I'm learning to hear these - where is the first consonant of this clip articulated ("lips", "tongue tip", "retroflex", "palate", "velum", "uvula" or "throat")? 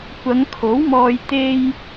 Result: velum